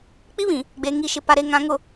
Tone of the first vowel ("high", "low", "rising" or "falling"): high